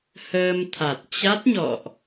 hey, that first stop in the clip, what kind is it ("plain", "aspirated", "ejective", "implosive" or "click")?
aspirated